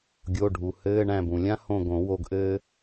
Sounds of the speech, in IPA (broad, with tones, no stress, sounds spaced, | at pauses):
ɡʲ o˩˧˩ ɖʱ u˩ h ɘː˧˥˧ ɳ æ̃˦˨ b ũ˩ lʲ ã˥ h õ˦˨ ɡ õ˨˩˦ w o˦˨ ɡ ʔ ɘː˥